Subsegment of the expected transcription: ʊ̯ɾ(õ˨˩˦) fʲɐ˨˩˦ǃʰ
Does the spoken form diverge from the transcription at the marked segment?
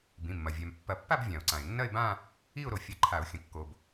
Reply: yes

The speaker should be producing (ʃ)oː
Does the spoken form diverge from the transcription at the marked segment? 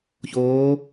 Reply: yes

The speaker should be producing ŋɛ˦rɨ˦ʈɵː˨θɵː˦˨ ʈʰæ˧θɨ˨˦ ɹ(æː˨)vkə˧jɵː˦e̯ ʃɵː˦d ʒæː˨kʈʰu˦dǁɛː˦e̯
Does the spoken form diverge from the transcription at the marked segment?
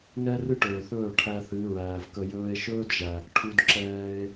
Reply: no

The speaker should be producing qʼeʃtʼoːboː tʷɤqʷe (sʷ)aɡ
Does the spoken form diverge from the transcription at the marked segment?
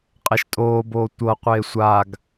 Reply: no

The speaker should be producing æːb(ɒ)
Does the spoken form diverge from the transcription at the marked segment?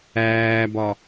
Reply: no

